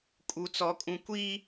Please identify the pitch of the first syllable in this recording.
high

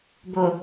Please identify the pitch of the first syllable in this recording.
low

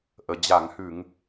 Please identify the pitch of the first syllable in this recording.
low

